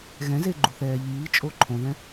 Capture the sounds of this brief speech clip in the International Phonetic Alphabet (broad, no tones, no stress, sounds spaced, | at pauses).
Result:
ɣ ɛ̃ z e ɡ͡ǃ u θ ɛː ʎ iː t͡ʃʼ o ǃʰ õ ð ɛ̃